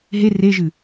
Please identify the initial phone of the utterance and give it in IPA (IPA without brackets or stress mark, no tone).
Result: ɦ